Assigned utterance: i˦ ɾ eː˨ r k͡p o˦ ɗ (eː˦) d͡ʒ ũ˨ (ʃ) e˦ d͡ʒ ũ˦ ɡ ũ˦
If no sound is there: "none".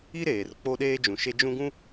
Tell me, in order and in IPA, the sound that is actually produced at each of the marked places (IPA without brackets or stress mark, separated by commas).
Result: eː˦, ʃ